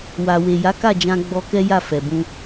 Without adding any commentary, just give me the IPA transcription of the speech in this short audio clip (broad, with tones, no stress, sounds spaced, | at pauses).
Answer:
w a˨ w e˨ j a˨˦ k a˦˨ d͡ʒ ã˧ ɡ͡b ɔ˧ k ɛ˦ j a˦˨ f ɛ˨ b ũ˧